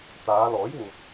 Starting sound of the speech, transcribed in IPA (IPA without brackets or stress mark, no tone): t̪